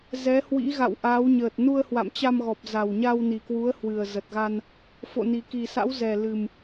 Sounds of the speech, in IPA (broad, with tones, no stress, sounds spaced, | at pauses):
z ɛ˨˦ h w ḭ˧˥ ɣ a̰˧˨ w ʔ aː˨˦ w ɲ əː˨˩ t̚ n u˧ ə̯ h w a̰˧˨ m t͡ɕ a˧ m ɣ ɔ˨˩ p̚ z a˨˩ w ɲ a˧ w n i˨˩ k w u˨˦ ə̯ h w ɨ˨˩ ə̯ z ə˨˩ t̚ ɣ a˧ n | f o̰˧˨ n i˨˩ k i˨˩ s a̰˧˥ w z ɛ˨˩ l ɨ˨˩ m